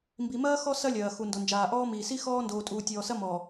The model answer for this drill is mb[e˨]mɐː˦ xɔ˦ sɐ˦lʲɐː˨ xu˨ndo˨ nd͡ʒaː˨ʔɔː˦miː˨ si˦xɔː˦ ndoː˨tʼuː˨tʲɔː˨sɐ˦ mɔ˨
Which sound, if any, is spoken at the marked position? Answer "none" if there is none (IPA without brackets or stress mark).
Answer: i˨